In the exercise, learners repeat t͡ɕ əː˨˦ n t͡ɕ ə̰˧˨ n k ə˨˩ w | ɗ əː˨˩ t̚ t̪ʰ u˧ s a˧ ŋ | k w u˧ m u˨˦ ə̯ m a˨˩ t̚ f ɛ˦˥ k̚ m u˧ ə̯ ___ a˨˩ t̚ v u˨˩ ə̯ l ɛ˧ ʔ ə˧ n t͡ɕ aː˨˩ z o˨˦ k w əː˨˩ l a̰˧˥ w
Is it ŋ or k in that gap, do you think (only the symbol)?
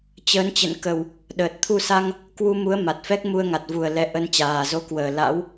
ŋ